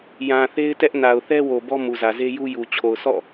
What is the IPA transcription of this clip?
j ã˨ θ e˦ ɪ̯ t ɛ˦ ʔ n a˨ ʊ̯ θ ɛ˦ w o˨ b ɔ˦ m u˨ z ä˨ z e˦ j u˦ j u˨ t͡ɕʰ o˨ ʊ̯ s ɔ̰˦˨

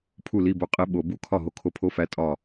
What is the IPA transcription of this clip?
pʰ u˥˩ l i˧˥˧ b o˧ qʼ i˨˥ ɓ o˨˩˦ b u˧˥˧ kʰ ɒ˥˩ ɦ o˨˥ kʰ o˧ pʰ o˧˥˧ f æ˨˥ tʼ ɒ˧˩

